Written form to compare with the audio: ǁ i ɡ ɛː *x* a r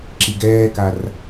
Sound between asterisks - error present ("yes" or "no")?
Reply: yes